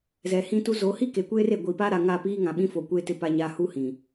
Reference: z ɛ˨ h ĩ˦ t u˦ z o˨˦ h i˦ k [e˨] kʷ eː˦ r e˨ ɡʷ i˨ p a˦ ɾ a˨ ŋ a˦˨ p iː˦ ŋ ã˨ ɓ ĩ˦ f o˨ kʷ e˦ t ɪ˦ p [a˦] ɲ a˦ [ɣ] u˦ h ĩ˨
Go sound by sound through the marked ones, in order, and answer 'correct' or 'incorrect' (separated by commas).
correct, correct, incorrect